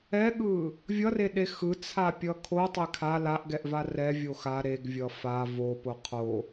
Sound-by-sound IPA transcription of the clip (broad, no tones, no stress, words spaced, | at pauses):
ɛɠɯ | vʲʌreɗe xɯt͡sʰapʲʌ kʰotˤe kʰa laʔɡɛʔva rɛvʲo xa ɾeɡvʲʌ fa vopo qʰo